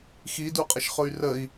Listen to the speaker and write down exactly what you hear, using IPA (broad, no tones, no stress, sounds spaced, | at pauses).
x i d u qʼ ə ʃ χ ʊ y̯ r ə i̯